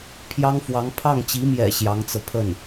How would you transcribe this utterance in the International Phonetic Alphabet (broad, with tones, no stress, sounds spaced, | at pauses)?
pʰ j ɑ˥ ŋ f w ɑ˧˥ ŋ pʰ ɑ˥˩ ŋ t͡ɕ i˧˥ m j ɛ̰˨˩ ɕ j ɑ˧˥ ŋ t͡s ɤ˧ pʰ ə˥˩ n